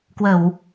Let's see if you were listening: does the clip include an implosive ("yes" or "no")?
no